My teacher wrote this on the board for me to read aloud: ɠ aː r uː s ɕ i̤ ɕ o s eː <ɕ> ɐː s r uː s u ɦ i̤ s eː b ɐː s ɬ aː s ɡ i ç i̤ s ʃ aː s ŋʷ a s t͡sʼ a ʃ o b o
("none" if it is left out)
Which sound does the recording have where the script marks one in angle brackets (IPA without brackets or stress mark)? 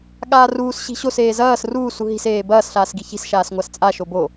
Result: z